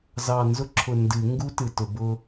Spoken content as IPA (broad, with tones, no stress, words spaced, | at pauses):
zɑ˨˩nzʊ˧ǁʰʊ˨˩ ndɨ˨˩˦ ŋɡu˦˥tɨ˨˩tʊ˨˩˦ bʊ˧